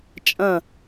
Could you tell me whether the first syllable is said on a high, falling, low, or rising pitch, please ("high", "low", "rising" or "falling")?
falling